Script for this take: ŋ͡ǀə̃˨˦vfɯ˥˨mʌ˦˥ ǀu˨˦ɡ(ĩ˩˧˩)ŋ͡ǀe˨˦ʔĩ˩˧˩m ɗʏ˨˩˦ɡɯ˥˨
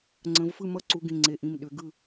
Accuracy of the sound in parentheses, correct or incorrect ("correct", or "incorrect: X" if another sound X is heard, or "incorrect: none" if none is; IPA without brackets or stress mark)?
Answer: correct